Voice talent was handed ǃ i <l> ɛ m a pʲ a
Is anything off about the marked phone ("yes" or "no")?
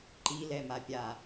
no